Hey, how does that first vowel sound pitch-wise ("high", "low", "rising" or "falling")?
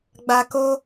low